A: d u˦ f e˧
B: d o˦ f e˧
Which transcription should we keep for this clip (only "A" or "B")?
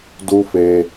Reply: A